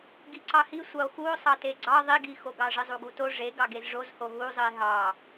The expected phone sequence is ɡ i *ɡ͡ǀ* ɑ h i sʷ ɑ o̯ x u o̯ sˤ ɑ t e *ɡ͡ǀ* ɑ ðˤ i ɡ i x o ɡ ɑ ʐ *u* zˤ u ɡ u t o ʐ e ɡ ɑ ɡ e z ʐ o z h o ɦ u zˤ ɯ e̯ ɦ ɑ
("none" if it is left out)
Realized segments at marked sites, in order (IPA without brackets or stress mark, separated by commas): ǀ, ɡ͡ǀ, ɯ